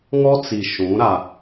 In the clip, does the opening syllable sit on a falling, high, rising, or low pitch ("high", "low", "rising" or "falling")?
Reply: high